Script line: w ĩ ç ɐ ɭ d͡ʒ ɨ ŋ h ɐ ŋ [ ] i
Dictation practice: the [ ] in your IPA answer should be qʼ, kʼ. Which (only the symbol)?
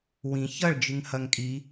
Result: kʼ